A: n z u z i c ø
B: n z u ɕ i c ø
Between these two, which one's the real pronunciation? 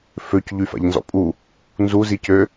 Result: A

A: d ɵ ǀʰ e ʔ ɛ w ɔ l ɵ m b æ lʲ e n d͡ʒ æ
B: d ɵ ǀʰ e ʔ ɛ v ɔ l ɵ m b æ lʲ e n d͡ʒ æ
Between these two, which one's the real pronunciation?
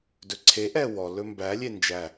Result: A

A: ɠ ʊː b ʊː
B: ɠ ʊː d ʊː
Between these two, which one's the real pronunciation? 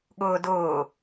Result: B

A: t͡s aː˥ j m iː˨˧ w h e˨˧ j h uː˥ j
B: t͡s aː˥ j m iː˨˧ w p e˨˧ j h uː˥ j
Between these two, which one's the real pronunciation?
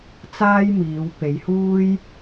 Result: B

